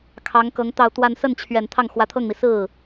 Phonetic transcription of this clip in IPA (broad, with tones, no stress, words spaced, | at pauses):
kʰɑ˧˥ŋkɤ˧˥ŋt̪ɑ˥˧ʊ̯t̪wa˥˧n sə˥˩nt͡ɕʰɥɛ˨˩n t̪ʰɑ˥˩ŋxwä˧˥t̪ʰɤ˥˩ŋmi˩ sɹ̩˥˩